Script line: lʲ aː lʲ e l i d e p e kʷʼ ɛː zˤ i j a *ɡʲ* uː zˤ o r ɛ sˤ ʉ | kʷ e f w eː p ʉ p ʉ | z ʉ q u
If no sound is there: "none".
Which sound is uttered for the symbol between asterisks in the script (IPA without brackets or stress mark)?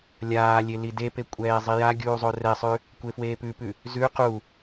ɡʲ